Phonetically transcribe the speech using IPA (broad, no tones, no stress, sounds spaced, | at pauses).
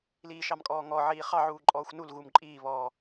l iː ʃ ɑ m kʼ ɔː ŋ ɔ ʕ iː χ ɑ ʕ uː ǃʼ ɔː xʷ n u l ɣ u m ǃʼ iː β ɔː